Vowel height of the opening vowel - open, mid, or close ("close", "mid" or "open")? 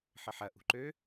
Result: mid